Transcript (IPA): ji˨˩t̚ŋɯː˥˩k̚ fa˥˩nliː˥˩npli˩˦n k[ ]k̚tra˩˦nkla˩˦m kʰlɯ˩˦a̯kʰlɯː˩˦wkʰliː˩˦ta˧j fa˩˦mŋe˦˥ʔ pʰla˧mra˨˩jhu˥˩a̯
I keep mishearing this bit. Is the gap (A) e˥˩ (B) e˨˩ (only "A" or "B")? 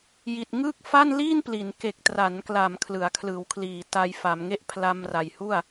B